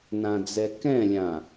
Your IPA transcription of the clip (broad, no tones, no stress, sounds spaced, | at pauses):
n ã d͡z ɛ k ɛ̃ lʲ ã